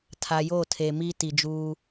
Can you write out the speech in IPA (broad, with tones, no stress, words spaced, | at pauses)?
tʰa˨jo˦˨tʰe˨mi˦ ti˨d͡ʒuː˦